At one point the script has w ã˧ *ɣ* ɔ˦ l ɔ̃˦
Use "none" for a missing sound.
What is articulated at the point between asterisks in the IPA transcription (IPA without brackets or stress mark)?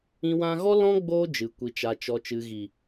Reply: ɣ